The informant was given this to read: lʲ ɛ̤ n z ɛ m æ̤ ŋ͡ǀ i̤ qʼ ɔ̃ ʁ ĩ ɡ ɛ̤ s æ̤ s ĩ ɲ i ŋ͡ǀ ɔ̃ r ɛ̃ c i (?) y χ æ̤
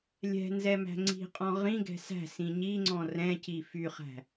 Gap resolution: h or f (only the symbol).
f